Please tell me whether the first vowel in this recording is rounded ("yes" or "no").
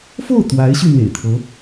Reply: yes